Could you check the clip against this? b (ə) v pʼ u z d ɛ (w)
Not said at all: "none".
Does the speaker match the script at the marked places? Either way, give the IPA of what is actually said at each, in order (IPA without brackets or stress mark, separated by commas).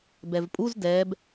ɛ, b